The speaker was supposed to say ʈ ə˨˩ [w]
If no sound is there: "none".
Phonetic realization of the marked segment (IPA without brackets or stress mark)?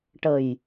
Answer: j